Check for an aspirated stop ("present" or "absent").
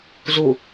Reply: absent